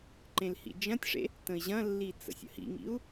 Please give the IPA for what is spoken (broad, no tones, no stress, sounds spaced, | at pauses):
ǃ ẽ l h ḭ d͡ʒ ɐ̃ tʲ ʂ ḛ | t ə̃ i̯ ʑ ɐ̃ lː i t͡s ə̰ sʲ ə̰ h ḭ ŋ ḭ u̯